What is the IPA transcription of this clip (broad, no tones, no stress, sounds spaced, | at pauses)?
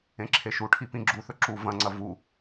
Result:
ẽ ǁʰ e ʃ u ʈʰ i p ĩ ɡ͡ǁ u θ ɵ ǁ u v ɐ̃ ŋ͡ǀ ɐ v u